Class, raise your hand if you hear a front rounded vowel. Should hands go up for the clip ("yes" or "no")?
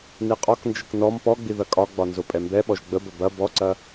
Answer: no